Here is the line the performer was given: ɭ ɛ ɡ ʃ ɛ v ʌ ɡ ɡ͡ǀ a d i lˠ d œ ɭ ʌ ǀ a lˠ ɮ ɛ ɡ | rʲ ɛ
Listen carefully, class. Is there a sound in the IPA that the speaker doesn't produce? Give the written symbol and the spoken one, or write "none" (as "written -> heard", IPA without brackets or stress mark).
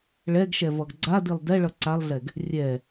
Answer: œ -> ɛ